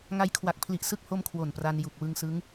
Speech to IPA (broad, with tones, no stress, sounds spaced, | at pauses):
ŋ a˧ j kʰ w a˨˩ k̚ pʰ l i˨˩ ʔ s ɯ˥˩ k̚ h o˥˩ m kʰ w o˨˩ n p r a˧ n j u˨˩ k̚ w ɯ˧ ŋ s ɯ˦˥ ŋ